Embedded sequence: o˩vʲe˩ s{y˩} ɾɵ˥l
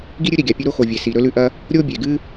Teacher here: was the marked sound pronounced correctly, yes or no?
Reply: no